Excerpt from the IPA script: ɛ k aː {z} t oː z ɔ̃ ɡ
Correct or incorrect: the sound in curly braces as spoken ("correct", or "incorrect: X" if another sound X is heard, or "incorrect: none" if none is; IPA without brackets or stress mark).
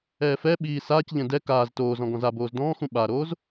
correct